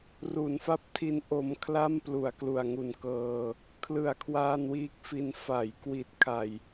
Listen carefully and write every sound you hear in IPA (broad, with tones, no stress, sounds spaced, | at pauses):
r u˩˦ n f a˥˩ p̚ tʰ i˦˥ n ʔ o˧ m kʰ l a˥˩ m p l u˩˦ a̯ k l u˨˩ a̯ ŋ u˨˩ n k ɤː˧ | kʰ l ɯ˩˦ a̯ kʰ w aː˧ n w iː˦˥ k̚ f i˧ n f a˩˦ j k w i˨˩ t̚ kʰ a˨˩ j